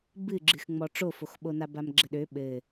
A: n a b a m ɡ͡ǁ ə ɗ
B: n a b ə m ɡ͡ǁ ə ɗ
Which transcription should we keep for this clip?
A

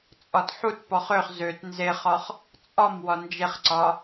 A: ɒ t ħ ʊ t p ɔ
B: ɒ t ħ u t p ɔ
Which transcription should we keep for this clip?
B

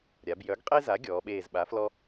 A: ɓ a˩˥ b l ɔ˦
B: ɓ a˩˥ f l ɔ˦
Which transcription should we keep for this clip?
B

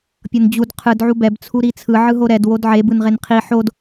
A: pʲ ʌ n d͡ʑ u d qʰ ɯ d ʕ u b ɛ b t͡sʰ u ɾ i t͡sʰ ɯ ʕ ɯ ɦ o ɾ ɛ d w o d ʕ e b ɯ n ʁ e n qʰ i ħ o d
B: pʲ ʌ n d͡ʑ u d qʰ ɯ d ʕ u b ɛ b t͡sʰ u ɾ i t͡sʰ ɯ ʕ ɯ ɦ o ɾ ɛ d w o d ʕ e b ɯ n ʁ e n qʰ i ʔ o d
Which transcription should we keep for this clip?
A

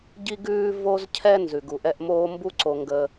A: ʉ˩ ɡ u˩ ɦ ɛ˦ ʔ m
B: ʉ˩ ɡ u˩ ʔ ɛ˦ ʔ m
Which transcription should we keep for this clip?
B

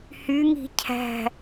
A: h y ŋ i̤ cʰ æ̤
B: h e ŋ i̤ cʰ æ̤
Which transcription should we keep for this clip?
A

